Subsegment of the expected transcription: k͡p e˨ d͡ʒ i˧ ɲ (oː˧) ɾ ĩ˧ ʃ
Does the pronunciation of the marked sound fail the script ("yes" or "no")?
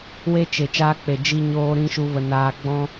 no